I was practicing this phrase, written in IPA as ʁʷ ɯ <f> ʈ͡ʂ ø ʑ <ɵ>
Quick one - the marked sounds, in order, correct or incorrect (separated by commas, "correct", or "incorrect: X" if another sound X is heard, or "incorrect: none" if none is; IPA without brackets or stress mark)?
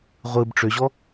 incorrect: b, incorrect: ɔ